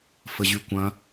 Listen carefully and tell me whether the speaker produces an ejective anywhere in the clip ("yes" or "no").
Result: no